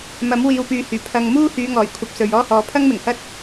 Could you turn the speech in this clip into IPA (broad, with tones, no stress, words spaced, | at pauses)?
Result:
mɐ˨˥mwiː˨wpyː˨hyː˨˩ pʰɐ˨ŋmuː˥ hyː˨˧ŋɔː˨˩j kʷʰɐ˧p̚sɵ˨ɥ ɔː˥hɔː˨˧ pʰɐ˥ŋmɪ˨˩ŋhɐ˥t̚